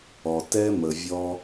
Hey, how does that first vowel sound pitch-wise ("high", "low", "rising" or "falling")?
low